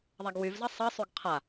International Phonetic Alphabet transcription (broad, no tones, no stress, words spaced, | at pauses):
ðˤaɡwyvzɜ sˤɜsˤyɡ qʰa